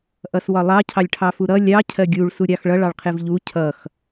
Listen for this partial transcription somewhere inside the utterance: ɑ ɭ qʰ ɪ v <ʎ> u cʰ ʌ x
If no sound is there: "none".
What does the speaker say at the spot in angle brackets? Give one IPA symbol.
ʎ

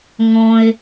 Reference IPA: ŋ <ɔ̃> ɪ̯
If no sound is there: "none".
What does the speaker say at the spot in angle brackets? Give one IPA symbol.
ɔ̃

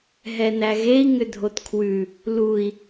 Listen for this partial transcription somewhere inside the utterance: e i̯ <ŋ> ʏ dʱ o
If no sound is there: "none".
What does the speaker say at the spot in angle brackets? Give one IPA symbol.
ŋ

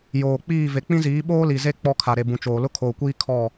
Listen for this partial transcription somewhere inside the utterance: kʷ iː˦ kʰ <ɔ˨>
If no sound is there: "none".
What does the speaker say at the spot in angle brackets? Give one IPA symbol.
ɔ˦˨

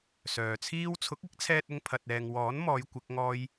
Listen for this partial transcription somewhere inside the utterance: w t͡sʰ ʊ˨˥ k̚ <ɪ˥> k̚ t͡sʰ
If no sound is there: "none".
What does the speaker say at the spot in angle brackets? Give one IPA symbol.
ɪ˨˥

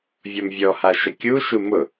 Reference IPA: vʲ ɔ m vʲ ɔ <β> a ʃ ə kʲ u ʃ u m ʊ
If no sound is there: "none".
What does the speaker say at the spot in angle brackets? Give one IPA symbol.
h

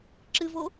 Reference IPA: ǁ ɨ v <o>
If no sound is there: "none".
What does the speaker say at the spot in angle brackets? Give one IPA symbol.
o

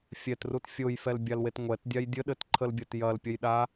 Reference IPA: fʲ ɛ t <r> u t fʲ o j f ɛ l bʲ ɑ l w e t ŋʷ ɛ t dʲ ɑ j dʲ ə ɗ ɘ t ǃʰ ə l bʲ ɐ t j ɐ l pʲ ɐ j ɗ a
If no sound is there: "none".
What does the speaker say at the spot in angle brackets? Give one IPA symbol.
r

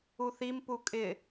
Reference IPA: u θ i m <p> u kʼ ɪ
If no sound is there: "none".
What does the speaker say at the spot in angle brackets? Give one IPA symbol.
p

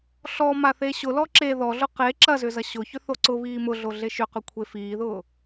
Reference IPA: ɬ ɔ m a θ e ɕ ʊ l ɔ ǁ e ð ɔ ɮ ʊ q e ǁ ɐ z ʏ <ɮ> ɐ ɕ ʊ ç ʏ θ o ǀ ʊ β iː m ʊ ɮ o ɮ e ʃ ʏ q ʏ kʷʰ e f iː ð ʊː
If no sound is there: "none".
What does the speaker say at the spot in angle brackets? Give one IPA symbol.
z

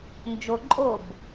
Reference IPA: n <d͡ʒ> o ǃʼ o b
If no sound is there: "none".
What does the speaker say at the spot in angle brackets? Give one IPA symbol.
d͡ʒ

